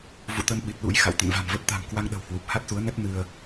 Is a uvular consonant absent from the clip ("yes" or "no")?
yes